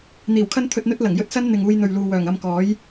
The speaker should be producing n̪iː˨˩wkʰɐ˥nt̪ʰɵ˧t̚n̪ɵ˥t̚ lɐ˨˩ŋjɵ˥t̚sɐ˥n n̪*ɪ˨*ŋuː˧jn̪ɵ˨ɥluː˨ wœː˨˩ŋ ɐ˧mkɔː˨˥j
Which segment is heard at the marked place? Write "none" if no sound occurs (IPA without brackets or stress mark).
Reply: ɪ˨